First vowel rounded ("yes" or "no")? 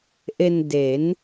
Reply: no